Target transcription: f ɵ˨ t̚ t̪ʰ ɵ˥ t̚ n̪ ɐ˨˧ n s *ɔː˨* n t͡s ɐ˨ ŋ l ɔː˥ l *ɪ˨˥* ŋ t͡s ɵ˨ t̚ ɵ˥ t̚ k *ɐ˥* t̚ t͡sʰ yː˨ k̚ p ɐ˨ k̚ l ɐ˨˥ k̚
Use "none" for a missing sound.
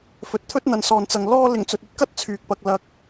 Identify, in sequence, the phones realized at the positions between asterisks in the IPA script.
ɔː˨, ɪ˨˩, ɐ˥

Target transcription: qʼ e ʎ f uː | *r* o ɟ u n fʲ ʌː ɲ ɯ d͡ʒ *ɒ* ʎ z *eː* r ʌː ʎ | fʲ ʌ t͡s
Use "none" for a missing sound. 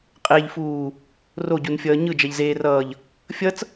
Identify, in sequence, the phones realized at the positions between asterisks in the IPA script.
r, ʌ, eː

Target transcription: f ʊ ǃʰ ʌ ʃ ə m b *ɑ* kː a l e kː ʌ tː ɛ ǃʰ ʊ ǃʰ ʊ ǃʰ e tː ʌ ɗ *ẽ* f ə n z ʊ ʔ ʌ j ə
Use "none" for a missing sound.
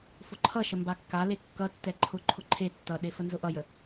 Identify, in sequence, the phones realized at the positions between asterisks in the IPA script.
a, e

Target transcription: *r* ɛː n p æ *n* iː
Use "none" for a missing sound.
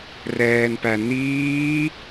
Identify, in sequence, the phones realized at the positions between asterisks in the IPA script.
r, n

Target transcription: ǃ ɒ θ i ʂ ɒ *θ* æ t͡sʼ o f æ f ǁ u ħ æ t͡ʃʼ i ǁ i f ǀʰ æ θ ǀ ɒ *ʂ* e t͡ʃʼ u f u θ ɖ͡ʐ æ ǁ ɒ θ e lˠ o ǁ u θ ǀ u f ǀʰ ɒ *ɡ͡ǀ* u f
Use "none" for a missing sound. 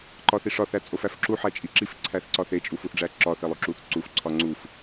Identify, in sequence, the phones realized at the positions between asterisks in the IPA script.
θ, θ, ŋ͡ǀ

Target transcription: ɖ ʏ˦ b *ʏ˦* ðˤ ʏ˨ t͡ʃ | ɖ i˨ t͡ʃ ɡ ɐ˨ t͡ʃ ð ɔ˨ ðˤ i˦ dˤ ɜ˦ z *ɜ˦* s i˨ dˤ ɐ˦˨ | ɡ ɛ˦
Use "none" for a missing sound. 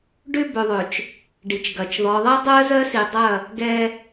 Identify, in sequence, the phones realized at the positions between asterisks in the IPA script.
ʏ˨, ɜ˦

